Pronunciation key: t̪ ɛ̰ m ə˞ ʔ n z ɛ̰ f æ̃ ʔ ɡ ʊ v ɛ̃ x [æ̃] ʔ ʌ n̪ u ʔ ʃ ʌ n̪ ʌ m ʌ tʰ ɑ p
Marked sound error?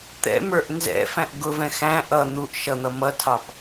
no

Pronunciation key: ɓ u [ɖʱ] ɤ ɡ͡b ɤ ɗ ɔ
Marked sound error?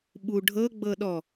no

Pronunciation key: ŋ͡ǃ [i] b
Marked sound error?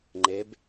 yes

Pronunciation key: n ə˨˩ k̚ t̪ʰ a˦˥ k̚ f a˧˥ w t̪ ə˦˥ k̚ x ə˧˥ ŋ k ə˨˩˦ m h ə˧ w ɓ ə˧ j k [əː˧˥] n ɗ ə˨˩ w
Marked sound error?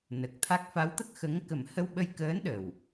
no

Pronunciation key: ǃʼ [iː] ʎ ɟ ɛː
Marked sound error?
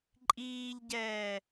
no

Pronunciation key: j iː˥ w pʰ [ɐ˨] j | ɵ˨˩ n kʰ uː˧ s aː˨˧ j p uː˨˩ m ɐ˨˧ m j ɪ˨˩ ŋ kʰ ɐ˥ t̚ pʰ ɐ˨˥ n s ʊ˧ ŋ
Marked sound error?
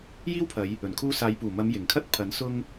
yes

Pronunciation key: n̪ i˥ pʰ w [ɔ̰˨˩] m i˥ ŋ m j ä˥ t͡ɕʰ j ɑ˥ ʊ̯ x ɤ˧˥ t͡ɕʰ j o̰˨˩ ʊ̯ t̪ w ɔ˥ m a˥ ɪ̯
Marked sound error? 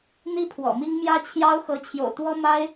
no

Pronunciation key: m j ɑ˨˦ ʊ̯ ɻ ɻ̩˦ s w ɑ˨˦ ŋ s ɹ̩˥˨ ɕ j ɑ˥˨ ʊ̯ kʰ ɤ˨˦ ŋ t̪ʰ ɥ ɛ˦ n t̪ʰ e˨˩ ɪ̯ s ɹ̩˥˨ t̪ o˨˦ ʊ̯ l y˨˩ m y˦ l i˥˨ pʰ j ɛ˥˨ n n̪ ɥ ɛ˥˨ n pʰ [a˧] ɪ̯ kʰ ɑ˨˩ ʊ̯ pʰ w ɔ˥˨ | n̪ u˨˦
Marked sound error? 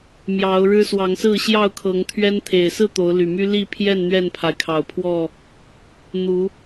yes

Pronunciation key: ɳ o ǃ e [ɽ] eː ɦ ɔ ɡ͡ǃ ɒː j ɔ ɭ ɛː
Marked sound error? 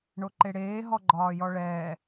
no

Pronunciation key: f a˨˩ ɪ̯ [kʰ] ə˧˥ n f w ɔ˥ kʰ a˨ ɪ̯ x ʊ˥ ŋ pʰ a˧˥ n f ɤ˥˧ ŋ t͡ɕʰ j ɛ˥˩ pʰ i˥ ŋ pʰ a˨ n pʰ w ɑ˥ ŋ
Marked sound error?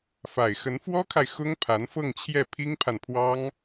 yes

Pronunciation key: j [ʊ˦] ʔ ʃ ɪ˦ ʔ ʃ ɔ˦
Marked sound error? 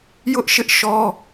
no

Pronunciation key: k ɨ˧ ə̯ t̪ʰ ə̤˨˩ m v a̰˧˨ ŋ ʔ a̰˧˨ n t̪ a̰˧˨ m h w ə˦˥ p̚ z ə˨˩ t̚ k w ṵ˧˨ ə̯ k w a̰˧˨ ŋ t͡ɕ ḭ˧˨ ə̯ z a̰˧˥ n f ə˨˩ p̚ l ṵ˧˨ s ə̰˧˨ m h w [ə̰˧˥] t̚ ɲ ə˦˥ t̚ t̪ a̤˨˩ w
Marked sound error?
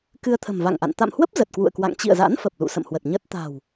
yes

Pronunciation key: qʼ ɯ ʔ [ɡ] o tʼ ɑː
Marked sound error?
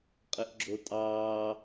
yes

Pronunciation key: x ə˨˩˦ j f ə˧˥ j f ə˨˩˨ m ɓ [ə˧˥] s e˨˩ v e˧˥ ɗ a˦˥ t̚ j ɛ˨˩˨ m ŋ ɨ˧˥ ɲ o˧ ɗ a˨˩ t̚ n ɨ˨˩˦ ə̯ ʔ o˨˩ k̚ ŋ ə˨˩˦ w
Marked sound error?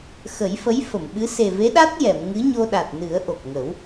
yes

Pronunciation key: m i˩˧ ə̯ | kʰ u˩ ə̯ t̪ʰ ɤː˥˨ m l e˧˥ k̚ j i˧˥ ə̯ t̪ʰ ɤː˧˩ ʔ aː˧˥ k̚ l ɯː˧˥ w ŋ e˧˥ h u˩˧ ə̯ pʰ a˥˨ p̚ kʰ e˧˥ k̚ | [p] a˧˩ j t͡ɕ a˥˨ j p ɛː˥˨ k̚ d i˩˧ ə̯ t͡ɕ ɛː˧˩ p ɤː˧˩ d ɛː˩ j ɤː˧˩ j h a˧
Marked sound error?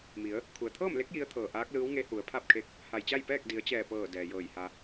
yes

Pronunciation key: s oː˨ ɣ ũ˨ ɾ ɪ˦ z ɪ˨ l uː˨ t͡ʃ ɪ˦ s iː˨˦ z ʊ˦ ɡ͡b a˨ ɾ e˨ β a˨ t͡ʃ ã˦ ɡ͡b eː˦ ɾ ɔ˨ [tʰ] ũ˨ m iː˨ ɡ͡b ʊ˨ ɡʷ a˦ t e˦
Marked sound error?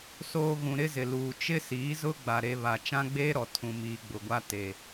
no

